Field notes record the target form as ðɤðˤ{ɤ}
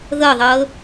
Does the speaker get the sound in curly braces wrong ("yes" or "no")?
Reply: no